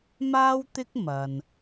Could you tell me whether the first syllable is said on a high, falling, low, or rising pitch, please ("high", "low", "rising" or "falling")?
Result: high